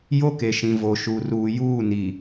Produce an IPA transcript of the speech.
j o˦ k e˨ ʃ ĩ˨ v o˨ ʃ u˨ r uː˨ j uː˦˨ n i˨

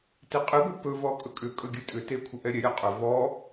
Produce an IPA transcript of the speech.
t i qʼ ɨ ɡʷ ɨ p ɵ v ɔ kʼ ɵ kʼ ʏ kʼ ɵ ɡʲ ɨ tʼ ʏ t e kʷʰ ə ʔ ɛ ɾʲ ɛ ɾʲ a qʼ ɵ v ɔ

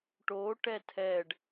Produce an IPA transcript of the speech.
ʈ o ʈ ɛ tʰ ɛ ɖ

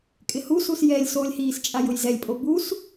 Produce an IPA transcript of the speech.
kʼ ɪ h u s u s j ɛ lʲ s o lʲ h iː s t͡ʃʼ a j ʊ j z ɛ lʲ pʼ o b u s

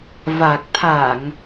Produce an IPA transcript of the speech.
v a˨˩ k̚ t̪ʰ a˧˩˨ ŋ

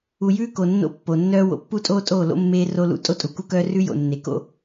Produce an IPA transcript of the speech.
u˨ j ʉː˦ k o˨ nː o̰˦ pː o˨ nː œː˦ w o̰˨ pː u˦ tʼ oː˦ tʼ oː˦˨ l o̰˦ mː eː˦ r o˦ l ṵ˦ tʼ o˦ tʼ u˨ k u˦ k œː˦ r ʉ˦ j o̰˨ nː e˨ k o̰˦

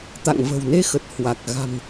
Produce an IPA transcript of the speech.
t̪ a̰˧˨ ŋ v ə̤˨˩ w n e˧ x ə˨˩ t̚ h w a˨˩ k̚ ɣ a̤˨˩ m

